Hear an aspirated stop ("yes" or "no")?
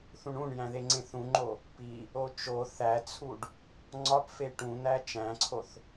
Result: yes